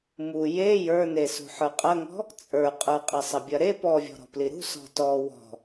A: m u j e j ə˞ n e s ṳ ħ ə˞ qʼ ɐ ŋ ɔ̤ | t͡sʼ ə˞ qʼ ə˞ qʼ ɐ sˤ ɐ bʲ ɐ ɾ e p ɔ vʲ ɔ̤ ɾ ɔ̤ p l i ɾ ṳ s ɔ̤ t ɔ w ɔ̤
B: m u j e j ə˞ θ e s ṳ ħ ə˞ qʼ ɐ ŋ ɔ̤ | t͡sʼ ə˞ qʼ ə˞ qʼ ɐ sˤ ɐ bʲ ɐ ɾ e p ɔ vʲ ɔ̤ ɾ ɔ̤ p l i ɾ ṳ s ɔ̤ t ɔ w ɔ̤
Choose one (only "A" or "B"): A